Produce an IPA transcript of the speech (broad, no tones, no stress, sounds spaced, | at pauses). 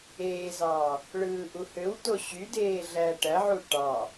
eː z ɑː | ɭ ɯː ʔ u h ø w t o ɕ y d eː ɮ æ ʈ æ ʕ u ʈ ɑ